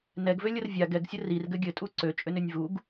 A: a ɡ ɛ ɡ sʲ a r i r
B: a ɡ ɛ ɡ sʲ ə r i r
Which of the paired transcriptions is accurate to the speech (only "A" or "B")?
B